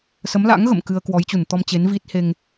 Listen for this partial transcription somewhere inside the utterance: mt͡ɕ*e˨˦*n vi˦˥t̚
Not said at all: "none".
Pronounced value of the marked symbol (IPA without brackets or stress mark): e˨˦